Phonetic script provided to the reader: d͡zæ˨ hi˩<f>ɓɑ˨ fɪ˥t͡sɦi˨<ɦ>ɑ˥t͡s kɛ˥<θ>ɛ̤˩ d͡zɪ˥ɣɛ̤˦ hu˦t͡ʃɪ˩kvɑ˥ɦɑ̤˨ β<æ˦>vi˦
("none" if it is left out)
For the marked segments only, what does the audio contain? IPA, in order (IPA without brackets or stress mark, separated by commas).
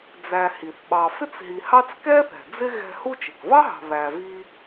θ, h, θ, æ˨